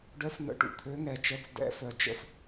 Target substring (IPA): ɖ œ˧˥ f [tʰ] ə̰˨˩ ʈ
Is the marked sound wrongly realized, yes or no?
yes